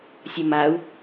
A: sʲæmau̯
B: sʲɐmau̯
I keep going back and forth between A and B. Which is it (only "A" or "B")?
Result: B